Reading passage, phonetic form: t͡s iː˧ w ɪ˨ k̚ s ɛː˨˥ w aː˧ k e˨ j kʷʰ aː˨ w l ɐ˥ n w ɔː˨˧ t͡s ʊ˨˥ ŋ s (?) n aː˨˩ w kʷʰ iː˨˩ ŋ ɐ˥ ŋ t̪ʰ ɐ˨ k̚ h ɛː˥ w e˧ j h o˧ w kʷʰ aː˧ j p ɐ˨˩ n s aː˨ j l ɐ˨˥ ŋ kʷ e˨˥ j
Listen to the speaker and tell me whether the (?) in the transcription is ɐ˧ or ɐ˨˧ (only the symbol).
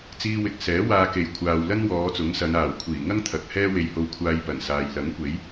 ɐ˨˧